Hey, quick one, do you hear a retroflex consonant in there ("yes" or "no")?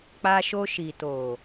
no